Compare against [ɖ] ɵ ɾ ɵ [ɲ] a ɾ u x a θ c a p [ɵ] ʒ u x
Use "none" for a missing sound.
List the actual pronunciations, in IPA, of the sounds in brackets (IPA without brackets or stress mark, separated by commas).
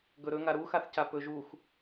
ɡ, ŋ, ɵ